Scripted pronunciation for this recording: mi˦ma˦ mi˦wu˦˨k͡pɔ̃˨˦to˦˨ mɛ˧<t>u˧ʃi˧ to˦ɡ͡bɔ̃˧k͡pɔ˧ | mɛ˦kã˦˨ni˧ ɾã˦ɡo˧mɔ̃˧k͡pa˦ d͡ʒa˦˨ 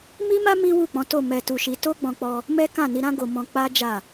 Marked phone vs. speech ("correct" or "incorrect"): correct